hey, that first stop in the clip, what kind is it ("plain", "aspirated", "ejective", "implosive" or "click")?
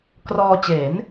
plain